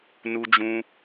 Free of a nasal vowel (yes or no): no